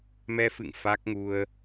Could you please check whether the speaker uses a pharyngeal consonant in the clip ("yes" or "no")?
no